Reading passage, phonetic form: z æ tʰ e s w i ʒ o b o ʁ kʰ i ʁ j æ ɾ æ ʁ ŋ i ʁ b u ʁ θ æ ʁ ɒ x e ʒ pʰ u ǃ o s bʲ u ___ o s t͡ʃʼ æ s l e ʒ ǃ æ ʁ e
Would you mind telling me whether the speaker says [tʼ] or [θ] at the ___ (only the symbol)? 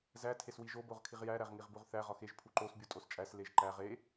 tʼ